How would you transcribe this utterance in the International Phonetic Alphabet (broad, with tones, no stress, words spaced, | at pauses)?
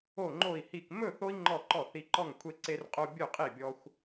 o˥˨ŋ͡ǃo˥˨i̯hi˥˨k mɵ˥˨θo˦i̯ ŋ͡ǃɔ˥˨ǃɔ˥˨θi˦ ǃɔ˥˨ŋkʷʰe˦ǀe˦rqʼo˦ bʲɵ˥˨qʼi˥˨bʲɔ˦xʷ